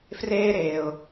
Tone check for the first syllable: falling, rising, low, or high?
high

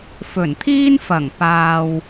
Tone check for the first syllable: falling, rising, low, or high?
low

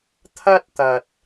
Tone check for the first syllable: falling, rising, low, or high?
high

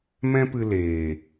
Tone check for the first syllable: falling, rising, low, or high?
high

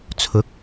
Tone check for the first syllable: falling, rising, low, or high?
rising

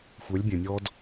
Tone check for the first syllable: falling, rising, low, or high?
rising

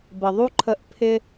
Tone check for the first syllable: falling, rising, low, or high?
low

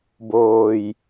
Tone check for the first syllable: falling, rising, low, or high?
low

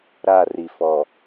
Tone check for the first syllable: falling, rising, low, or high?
falling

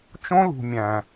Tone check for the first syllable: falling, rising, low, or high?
high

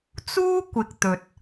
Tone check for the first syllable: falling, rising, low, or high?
high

